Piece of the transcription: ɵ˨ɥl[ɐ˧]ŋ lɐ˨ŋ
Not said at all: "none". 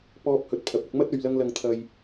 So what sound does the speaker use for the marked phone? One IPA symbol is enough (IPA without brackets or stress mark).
ɐ˧